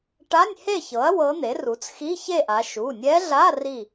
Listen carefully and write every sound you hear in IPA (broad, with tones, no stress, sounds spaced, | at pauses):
ʈ a˧˥˧ nʲ h e˥˨ ç ɤ˩˥ ɐ̯ w ɤ˧˥ n̪ e˩˥ r u˩˥ t͡s x i˧˥˧ ç e˥˨ ʔ a˩˧ ʃ u˩˧˩ nʲ ɛ˧˥ ɮ a˧˥˧ r i˥˨